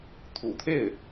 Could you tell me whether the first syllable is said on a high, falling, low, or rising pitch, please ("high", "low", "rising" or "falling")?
low